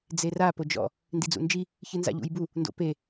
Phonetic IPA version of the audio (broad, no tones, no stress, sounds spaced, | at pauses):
d͡z e r a p o d͡ʒ ɔ̰ | n d i d͡z ṵ n d͡ʒ i | ç ɨ n z a̰ ʎ ṵ j b u | n d o̰ p e